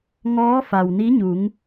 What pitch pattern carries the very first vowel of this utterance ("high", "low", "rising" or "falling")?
rising